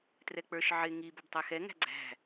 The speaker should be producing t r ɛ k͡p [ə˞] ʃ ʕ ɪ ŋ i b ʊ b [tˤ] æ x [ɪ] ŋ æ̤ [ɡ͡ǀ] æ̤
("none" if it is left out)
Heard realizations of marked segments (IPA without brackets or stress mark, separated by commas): ə˞, tˤ, ɛ, ɡ͡ǀ